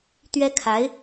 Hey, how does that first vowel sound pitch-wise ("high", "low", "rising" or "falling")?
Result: high